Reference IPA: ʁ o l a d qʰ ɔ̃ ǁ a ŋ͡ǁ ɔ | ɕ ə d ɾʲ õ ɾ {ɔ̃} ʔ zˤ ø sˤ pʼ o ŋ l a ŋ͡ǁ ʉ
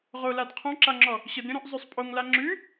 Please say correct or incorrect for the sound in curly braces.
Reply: incorrect